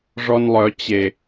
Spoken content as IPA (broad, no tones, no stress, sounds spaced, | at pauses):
ʐ ɔ n lˠ œ t͡ɕ e